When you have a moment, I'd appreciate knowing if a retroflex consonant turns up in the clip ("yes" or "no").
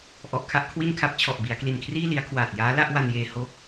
no